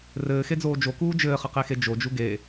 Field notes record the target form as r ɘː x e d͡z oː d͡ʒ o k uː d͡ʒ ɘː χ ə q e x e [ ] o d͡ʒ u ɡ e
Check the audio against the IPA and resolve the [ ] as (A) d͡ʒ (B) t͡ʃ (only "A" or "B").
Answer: A